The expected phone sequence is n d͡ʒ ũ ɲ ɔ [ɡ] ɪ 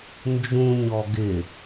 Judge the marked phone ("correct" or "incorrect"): correct